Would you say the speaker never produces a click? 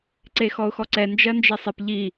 no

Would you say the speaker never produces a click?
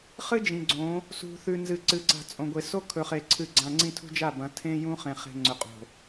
no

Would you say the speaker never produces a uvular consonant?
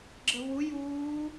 yes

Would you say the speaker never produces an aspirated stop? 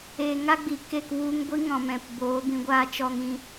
yes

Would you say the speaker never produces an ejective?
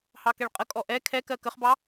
no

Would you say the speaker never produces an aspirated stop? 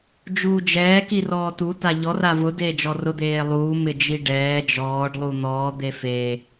yes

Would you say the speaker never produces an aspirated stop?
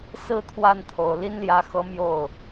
no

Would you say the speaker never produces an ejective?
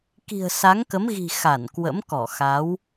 yes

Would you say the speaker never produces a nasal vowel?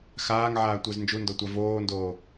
yes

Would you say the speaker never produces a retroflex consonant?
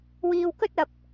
yes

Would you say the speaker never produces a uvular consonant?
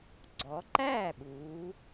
yes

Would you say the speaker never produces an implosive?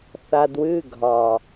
yes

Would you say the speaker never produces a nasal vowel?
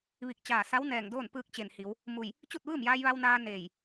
yes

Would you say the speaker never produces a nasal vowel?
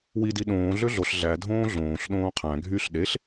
no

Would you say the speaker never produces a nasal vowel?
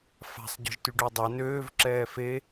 yes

